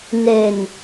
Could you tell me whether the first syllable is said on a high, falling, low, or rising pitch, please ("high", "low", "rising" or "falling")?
low